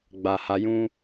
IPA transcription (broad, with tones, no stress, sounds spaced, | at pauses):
ɡ͡b a˨ h a˧ j ũ˦